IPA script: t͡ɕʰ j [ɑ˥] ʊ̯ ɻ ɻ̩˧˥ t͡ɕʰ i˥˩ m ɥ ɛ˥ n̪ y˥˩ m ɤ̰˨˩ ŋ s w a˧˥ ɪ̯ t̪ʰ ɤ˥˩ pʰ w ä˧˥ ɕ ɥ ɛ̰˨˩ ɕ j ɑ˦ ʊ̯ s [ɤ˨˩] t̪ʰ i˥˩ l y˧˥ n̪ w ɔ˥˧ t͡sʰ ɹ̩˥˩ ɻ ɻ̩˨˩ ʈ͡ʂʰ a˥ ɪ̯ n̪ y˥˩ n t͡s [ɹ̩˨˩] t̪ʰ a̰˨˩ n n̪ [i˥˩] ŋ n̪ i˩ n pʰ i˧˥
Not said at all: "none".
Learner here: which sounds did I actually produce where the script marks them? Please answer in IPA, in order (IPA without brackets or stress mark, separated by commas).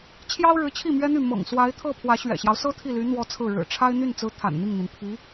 ɑ˥, ɤ˥, ɹ̩˧˥, i˥˩